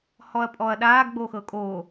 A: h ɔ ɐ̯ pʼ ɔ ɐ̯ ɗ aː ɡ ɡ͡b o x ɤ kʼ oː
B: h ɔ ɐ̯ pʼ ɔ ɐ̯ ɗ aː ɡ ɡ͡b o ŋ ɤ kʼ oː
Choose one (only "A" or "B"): A